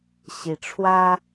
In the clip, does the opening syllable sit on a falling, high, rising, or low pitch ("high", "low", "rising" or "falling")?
rising